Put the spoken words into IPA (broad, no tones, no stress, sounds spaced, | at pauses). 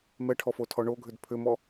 m ɛ ʈʰ ɔ f o tʰ ɔ ɳ o ɡʱ ʏ d pʰ ʏ m ɔ